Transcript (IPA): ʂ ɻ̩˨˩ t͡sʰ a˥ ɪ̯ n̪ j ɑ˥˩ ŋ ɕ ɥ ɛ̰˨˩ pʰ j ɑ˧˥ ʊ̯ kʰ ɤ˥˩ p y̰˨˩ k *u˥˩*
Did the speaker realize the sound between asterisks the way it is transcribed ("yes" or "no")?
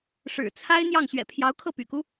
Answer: no